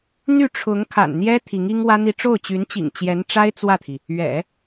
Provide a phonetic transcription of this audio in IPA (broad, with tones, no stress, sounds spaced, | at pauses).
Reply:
n̪ y˥˩ ʈ͡ʂʰ ʊ˧˥ ŋ kʰ a̰˨˩ n n̪ j ɛ˥ t̪ʰ i˧˥ ŋ i˥ ŋ w ä˥ n̪ i˥˧ ʈ͡ʂ o˥˩ ʊ̯ t͡ɕ y˧˥ n t͡ɕ ḭ˨˩ ŋ t͡ɕ j ɛ˧˥ n ʈ͡ʂ a˥ ɪ̯ t͡s w ä˥˩ t̪ʰ i˩ | ɥ ɛ̰˨˩˦